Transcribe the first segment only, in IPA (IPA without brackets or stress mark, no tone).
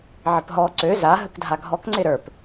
ʕ